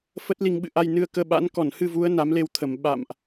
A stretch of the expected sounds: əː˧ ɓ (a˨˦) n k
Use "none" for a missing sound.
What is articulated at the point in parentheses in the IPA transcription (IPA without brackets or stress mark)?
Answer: a̰˧˥